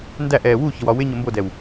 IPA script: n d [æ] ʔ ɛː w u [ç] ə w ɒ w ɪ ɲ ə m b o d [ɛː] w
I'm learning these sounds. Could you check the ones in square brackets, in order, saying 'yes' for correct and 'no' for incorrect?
yes, yes, no

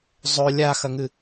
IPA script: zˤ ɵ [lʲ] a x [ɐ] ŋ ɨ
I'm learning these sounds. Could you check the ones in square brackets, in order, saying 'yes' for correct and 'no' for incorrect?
yes, yes

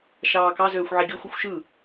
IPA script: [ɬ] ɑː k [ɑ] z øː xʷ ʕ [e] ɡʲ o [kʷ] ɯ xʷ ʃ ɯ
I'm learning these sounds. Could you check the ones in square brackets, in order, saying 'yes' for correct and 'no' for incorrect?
no, yes, yes, no

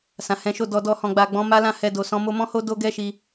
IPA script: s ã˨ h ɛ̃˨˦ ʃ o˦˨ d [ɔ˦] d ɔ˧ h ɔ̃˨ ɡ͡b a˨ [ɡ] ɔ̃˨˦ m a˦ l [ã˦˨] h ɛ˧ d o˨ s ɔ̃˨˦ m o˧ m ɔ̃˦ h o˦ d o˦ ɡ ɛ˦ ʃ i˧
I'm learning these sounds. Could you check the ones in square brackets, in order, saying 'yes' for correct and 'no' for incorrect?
no, no, yes

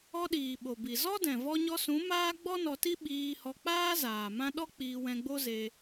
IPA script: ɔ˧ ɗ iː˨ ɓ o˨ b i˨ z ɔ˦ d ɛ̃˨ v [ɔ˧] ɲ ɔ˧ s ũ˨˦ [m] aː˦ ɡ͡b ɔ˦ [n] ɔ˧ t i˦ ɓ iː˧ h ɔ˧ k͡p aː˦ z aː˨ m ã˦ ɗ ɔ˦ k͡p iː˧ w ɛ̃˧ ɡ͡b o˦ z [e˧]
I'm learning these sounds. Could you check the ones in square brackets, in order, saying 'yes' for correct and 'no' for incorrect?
yes, yes, yes, yes

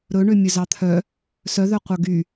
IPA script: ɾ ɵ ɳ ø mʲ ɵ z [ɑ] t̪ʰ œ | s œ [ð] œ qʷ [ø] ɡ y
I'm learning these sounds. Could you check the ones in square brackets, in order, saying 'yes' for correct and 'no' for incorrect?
yes, yes, no

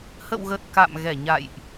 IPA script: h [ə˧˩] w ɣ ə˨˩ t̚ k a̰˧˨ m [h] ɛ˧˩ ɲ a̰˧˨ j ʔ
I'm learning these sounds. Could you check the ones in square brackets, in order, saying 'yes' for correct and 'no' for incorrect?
no, no

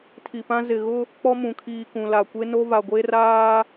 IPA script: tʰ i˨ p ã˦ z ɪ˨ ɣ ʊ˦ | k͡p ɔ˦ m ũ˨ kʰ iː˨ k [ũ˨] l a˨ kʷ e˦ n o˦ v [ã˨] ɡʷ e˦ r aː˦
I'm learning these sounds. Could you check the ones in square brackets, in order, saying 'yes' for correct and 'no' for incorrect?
yes, no

